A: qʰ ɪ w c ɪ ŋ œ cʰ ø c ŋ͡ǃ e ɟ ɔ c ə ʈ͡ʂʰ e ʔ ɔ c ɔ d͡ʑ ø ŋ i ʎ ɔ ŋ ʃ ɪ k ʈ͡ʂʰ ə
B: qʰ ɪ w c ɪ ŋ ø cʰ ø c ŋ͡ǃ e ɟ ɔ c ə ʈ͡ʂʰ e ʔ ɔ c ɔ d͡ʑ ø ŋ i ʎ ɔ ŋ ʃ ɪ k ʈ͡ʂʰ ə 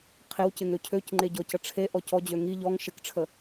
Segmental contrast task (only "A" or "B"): B